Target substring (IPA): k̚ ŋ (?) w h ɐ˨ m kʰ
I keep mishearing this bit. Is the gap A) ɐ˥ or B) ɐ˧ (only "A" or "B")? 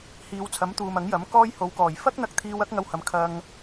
B